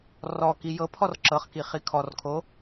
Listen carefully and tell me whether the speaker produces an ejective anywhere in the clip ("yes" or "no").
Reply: no